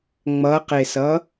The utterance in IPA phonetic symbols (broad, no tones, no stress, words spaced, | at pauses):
ŋ͡mʌqesʌ